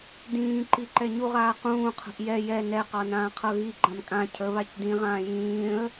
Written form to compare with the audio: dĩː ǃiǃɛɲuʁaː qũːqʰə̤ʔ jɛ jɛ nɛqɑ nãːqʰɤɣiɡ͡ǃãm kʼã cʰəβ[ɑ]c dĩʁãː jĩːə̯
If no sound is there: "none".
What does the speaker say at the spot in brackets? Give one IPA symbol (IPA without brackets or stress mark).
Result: a